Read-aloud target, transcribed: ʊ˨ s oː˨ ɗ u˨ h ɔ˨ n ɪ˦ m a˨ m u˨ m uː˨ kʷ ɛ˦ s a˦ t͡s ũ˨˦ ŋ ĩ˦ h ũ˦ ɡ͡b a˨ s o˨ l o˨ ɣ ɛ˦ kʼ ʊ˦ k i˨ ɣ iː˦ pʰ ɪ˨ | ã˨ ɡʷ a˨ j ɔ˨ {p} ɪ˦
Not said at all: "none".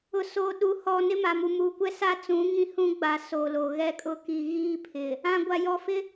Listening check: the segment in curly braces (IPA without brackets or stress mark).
f